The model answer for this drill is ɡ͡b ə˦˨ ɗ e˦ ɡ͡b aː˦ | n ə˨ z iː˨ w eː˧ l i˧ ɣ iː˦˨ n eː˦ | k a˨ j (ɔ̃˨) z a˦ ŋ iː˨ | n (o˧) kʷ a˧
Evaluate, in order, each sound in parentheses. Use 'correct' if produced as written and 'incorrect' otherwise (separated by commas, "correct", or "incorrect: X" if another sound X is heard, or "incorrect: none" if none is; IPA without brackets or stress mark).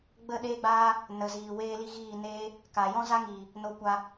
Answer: incorrect: ɔ̃˦, correct